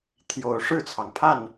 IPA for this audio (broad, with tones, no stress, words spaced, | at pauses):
t̪ʰjo˨˦ʊ̯ ʂɻ̩˥˨t͡sʰɑ˩ŋpʰa˥˨n